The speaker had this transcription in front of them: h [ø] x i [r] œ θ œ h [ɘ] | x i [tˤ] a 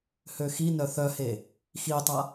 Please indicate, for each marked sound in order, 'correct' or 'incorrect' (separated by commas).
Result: correct, incorrect, incorrect, correct